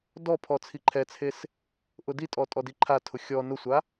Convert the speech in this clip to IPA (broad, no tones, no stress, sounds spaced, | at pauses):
d ɔ pʰ ɔ t͡sʰ i ǃʰ ɛ t͡sʰ e s | ʔ ʊ d i tʼ ɔ tʼ ɔ d i ǃʰ a tʰ ʊ xʲ ɔ n ʊ sʷ a